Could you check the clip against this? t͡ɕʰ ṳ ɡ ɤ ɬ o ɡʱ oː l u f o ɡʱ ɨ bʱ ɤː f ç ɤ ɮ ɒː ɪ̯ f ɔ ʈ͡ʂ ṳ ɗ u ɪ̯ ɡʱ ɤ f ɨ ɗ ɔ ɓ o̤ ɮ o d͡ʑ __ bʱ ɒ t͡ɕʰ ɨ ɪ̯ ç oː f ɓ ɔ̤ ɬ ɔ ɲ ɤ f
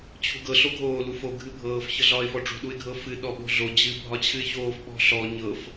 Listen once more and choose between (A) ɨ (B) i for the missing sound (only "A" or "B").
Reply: A